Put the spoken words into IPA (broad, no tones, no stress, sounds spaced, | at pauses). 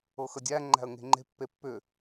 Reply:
ɤ x ə dʲ æ ŋ͡ǃ æ̤ ə̯ ŋ e̤ ŋ͡ǃ e̤ pː e pː ʏ